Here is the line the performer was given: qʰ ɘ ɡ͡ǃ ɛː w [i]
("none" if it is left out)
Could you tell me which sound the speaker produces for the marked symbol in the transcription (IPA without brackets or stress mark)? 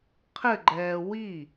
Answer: i